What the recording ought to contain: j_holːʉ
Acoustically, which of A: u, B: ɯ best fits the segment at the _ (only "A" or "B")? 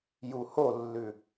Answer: A